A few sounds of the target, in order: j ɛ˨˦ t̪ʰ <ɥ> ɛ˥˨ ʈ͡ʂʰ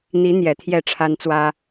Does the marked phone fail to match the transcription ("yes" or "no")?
yes